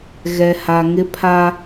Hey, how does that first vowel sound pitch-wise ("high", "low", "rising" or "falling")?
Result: low